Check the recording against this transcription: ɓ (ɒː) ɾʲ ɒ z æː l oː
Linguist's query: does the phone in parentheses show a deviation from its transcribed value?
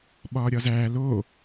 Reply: no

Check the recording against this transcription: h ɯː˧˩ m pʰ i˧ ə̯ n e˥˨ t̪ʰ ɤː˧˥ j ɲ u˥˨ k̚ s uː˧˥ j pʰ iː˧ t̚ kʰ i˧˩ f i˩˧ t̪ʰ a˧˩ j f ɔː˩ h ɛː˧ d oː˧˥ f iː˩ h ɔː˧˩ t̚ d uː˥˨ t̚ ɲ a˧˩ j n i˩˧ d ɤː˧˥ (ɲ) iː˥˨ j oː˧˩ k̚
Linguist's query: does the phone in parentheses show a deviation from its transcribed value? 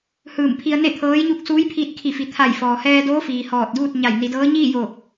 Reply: no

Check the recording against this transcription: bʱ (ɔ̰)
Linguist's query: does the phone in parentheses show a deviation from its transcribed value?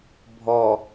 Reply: yes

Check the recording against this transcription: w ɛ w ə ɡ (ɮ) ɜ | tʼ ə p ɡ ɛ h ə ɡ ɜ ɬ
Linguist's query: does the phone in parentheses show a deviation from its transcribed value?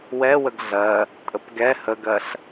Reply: no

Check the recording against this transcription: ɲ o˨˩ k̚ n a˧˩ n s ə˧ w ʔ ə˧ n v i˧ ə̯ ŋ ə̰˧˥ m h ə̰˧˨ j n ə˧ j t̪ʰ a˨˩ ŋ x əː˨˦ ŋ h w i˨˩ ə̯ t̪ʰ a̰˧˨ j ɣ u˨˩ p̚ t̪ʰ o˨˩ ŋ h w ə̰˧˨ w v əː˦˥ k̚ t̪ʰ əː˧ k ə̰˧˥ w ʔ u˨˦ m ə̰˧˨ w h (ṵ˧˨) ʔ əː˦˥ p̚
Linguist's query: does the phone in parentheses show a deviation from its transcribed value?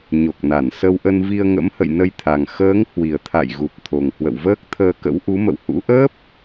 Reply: yes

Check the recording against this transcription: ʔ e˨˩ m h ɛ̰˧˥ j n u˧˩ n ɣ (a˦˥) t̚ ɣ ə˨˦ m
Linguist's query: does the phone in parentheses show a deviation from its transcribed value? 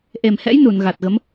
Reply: yes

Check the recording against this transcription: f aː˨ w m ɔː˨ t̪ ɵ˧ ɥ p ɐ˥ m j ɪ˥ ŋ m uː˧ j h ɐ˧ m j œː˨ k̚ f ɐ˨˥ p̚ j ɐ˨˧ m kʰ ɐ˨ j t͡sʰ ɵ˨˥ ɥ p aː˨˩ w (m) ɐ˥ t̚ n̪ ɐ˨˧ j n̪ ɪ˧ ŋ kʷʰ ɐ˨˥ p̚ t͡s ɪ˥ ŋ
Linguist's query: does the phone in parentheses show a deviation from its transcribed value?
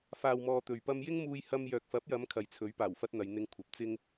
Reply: yes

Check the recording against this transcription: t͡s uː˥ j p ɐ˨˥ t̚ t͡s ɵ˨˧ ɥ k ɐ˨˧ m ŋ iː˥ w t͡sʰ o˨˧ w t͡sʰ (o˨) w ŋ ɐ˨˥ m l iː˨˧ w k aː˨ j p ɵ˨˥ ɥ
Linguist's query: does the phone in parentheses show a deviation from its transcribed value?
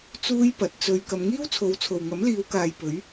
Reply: no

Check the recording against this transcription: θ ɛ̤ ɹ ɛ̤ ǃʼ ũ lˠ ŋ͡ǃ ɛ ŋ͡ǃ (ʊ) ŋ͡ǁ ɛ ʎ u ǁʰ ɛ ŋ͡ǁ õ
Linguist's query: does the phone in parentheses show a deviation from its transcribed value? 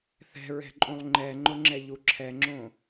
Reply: no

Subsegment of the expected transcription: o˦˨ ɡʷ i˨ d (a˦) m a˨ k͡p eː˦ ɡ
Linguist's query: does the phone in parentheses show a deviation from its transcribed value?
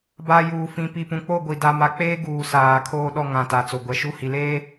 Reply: yes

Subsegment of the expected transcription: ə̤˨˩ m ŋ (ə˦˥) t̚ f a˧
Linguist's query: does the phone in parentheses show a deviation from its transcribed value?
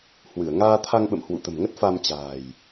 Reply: no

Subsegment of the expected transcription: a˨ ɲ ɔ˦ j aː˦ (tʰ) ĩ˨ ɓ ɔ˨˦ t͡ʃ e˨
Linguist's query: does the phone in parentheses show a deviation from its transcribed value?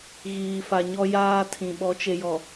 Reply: no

